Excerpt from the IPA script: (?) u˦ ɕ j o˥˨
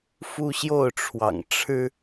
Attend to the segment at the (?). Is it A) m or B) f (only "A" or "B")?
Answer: B